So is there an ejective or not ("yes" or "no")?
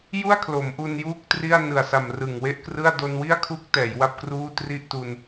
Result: no